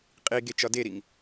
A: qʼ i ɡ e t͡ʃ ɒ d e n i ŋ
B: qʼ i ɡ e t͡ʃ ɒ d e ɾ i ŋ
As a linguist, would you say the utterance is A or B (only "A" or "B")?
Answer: B